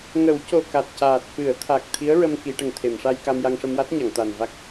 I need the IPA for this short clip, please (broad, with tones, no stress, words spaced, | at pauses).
ŋə˨˩˦wco˨˩ ka˨˩t̚caː˨˩t̚ fɨ˨˩˨ə̯t̪ʰa˨˩k̚ t̪ʰi˧˥ə̯ɹə˧m ki˨˩˦ʈə˨˩ŋt̪ʰe˨˩˨m ʂa˧jka˧mja˧ŋ ʂə˧mwa˦˥t̚ɲa˨˩˨ŋ t̪a˨˩nva˦˥k̚